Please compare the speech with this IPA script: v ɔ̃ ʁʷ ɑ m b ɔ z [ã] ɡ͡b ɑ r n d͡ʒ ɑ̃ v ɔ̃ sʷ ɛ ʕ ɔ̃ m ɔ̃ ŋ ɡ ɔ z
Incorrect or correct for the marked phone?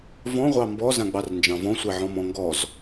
correct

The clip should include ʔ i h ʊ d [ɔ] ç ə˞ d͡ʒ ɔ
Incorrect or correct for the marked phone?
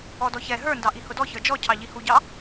correct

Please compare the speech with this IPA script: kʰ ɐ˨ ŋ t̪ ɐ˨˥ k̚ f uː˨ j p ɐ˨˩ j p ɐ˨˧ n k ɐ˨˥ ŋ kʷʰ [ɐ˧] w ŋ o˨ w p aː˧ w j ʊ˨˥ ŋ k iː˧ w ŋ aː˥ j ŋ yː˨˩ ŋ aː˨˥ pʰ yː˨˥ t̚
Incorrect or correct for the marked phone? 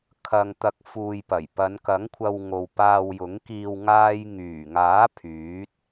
correct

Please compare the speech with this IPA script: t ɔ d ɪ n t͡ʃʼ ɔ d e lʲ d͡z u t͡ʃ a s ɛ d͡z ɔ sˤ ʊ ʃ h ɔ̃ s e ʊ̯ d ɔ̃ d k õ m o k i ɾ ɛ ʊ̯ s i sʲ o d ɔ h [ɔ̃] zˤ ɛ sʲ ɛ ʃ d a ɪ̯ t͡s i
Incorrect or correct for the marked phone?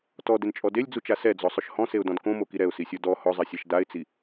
incorrect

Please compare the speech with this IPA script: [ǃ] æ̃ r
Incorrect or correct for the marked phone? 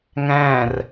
incorrect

